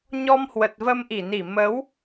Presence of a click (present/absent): absent